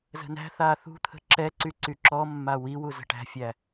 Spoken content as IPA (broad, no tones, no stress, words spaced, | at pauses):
zə̤næ̤θaː θṳt̪ʰə̤ ǁɛǀy ǀyǁɔmːa wiwu zə̤ʈæ̤fʲæ